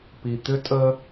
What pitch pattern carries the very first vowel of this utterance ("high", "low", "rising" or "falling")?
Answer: low